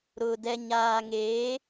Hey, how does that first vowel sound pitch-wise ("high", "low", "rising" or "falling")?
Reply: low